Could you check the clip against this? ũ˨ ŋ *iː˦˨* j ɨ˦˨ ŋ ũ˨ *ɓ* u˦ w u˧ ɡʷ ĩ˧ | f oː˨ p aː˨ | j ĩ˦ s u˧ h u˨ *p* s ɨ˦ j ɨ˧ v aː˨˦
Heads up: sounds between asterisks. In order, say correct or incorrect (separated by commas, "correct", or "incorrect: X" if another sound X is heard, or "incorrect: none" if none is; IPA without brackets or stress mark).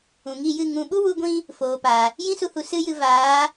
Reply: incorrect: i˦˨, correct, incorrect: none